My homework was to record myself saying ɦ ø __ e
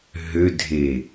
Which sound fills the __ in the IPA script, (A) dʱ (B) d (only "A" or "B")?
A